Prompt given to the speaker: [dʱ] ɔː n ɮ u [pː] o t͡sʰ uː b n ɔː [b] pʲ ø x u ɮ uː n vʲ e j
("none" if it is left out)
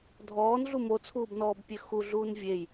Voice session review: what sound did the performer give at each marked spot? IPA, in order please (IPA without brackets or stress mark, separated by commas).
dʱ, m, b